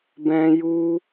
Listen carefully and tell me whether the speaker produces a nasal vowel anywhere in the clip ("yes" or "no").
yes